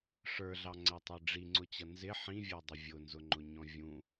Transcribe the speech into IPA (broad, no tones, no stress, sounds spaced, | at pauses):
ʂ ə˞ ɮ ɑ ŋ͡ǀ æ tˤ ə˞ ɖ͡ʐ i ŋ͡ǀ ʊ t͡ɕ ʌ n z ɪ ħ ĩ vʲ ə˞ dˤ ɪ vʲ ʊ n z ʊ ŋ͡ǃ ʊ ɲ ɔ̃ vʲ ũ